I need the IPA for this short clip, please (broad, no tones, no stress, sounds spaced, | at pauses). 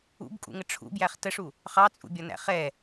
ṵ b kʼ ṵ ŋ ə ʈ͡ʂʰ ṵ b j æ χ t ə ʂ u | χ ɑ t͡sʼ ṵ bʲ ɒ n æ̰ χ ɛ